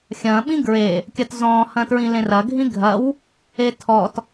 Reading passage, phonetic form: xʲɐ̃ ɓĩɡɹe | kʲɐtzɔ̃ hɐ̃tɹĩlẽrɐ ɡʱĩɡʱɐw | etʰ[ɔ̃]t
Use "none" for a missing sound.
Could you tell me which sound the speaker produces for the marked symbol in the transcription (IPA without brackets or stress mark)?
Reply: ɔ